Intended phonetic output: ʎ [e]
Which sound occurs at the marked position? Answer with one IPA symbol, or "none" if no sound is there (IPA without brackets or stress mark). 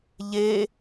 e